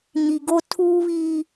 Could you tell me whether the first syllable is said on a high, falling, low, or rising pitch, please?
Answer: low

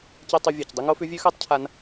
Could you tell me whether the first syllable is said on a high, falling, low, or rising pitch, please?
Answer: high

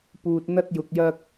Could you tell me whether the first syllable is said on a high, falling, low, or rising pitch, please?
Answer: low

